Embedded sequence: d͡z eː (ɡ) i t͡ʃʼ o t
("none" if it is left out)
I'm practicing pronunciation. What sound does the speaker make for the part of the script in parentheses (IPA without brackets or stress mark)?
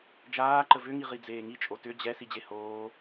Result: ŋ